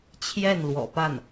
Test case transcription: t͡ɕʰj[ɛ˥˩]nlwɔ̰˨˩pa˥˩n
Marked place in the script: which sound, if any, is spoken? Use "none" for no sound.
ɛ˥˩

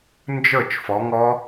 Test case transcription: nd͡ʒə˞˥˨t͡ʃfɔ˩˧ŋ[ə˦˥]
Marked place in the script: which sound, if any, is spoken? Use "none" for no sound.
ɔ˦˥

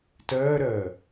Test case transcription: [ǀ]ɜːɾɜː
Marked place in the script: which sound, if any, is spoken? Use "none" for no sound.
t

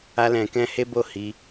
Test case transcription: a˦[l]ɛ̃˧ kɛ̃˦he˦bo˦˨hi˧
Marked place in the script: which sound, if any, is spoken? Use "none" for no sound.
l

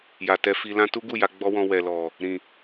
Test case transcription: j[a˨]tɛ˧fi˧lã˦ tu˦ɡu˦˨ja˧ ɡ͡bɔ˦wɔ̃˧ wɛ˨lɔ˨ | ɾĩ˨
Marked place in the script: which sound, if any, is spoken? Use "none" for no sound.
a˨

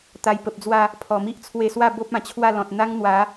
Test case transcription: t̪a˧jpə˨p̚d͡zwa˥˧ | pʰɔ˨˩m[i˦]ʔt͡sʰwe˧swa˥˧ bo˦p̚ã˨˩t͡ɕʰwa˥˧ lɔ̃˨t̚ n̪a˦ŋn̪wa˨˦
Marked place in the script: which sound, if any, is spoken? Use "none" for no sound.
i˦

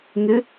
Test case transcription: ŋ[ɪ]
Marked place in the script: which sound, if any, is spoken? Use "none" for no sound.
ɪ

